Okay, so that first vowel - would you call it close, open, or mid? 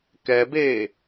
mid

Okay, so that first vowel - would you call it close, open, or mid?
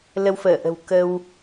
mid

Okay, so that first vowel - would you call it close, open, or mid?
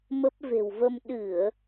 mid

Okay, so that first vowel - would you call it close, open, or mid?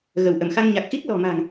mid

